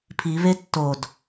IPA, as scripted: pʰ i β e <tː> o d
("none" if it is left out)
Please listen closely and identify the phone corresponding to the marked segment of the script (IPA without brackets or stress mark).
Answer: tː